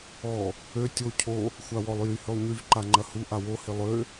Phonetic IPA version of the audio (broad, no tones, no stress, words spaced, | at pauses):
ɔ | ø tʲo cʰo | xʷawɔlˠjy hølˠɲyv ǃaŋ͡ǃɐhu ʔawo hɪlˠø